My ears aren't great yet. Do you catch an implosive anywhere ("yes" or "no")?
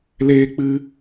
no